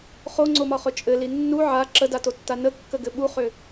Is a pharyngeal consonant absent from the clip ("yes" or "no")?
no